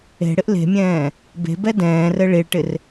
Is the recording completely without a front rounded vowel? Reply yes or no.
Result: yes